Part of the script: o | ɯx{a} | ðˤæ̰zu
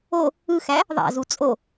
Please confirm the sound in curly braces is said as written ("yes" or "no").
no